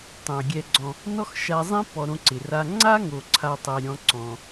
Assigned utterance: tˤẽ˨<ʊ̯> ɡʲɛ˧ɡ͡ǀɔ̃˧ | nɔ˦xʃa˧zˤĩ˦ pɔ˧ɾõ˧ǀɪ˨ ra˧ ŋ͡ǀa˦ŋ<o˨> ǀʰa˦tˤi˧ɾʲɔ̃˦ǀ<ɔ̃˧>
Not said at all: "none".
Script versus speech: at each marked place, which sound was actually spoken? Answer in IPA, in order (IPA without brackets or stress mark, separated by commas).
ʊ̯, o˨, ɔ̃˧